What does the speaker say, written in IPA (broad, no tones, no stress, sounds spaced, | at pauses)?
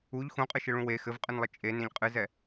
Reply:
u ʎ x ũ qʼ ɨ ʃ ɘ ɭ ũ w e x ɘ v qʼ ɨ n lˠ ɘ t͡ʃʼ e n ẽ ʎ qʼ ɨ z ɛ